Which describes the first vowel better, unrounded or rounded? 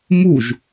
rounded